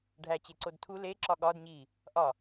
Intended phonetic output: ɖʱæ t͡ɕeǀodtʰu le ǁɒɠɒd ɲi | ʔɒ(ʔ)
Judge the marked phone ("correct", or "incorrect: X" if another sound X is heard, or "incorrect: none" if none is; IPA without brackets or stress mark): incorrect: none